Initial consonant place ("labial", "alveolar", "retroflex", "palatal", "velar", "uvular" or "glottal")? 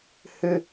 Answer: glottal